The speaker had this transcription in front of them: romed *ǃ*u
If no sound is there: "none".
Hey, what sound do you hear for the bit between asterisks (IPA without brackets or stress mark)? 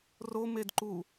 ǃ